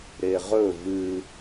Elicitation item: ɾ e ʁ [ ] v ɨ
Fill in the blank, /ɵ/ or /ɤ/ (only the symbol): ɵ